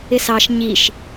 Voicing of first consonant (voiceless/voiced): voiceless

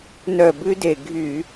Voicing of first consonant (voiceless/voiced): voiced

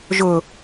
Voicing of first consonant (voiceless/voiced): voiced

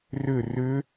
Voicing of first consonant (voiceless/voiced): voiced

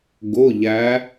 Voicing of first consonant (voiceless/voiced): voiced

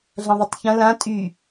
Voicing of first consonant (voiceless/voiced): voiced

